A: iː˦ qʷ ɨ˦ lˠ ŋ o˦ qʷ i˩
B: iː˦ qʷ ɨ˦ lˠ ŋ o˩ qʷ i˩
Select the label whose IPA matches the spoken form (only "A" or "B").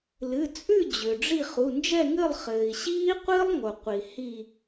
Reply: B